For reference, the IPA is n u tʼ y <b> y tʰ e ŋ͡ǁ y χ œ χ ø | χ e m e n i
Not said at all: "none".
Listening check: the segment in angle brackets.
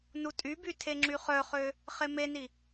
b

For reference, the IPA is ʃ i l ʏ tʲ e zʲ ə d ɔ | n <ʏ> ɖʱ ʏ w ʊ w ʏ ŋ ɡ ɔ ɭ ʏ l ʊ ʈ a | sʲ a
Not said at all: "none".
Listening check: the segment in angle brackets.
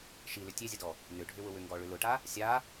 ʏ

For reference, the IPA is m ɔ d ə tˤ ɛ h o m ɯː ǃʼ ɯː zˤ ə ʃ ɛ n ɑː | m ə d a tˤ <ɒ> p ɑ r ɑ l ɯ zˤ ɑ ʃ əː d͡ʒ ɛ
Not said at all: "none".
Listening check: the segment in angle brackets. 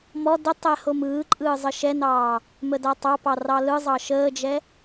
ɑ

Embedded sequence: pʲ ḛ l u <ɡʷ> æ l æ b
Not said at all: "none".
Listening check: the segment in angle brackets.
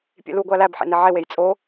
ɡʷ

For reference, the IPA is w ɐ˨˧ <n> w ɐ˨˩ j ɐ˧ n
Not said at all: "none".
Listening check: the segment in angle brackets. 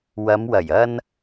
m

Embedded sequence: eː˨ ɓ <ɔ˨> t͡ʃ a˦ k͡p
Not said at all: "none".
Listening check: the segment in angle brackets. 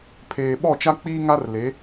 ɔ˦˨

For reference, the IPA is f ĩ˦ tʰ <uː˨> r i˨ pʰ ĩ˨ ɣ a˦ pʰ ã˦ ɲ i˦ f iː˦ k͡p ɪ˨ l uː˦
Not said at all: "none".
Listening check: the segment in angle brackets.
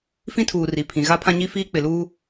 uː˨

